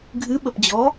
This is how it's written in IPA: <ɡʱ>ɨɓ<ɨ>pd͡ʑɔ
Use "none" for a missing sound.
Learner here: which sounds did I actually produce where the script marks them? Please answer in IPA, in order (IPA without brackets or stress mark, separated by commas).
ɡʱ, ə